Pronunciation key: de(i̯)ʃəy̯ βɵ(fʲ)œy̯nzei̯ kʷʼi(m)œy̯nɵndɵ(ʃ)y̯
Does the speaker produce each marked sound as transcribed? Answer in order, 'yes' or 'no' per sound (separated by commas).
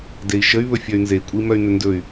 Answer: yes, yes, yes, no